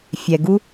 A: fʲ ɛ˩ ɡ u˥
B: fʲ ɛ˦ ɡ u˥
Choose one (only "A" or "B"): A